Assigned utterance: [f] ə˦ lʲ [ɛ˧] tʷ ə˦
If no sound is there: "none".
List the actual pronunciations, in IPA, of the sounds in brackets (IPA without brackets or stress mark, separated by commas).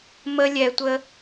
m, ɛ˧